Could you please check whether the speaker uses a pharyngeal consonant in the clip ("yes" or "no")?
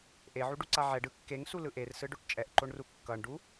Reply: yes